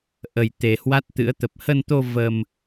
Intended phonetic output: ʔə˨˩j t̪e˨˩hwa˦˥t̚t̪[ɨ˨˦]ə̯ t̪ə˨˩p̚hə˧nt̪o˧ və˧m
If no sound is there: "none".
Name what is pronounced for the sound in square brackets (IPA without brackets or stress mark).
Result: ɨ̰˧˥